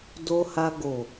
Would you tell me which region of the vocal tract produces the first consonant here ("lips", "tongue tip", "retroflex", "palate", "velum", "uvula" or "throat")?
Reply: tongue tip